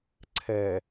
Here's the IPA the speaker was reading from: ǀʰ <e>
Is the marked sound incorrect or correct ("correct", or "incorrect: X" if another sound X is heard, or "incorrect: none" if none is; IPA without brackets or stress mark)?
incorrect: ɛ